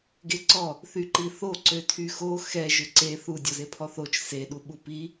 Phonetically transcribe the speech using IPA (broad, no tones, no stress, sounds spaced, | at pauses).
ɡ e ǀ ɔ | θ y ǃ i θ o ǀ ø tʰ y x o x ɛ ʒ ø ǀ e θ u dʲ ɔ z e pʰ ɔ θ o t͡ʃ s e ɗ u ɓ u p i